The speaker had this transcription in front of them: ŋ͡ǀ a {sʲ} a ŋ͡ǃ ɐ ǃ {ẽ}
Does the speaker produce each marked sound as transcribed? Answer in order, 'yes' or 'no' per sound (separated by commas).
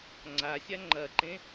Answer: yes, yes